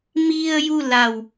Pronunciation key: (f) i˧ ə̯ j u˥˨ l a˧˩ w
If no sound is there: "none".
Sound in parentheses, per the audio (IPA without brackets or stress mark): m